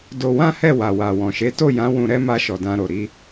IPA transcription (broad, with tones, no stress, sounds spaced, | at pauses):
d o˧ w ã˦ h ɛ˦˨ w a˨ w a˨ w ɔ̃˨ ʃ e˨˦ t o˦˨ j ã˨˦ w ũ˧ ɾ ɛ˦ m a˧ ʃ ɔ˨ d ã˧ ɾ o˨ ɾ i˧